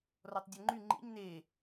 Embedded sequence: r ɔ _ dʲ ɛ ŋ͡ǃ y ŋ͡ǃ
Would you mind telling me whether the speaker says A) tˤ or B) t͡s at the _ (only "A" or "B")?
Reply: A